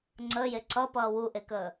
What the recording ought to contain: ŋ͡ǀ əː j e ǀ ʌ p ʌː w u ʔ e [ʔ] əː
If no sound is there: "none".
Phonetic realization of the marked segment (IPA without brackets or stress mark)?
k